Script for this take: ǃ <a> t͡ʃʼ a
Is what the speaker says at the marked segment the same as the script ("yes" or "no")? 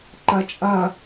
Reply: yes